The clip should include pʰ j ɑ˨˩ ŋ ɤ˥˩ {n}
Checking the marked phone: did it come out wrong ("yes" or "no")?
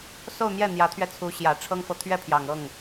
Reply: yes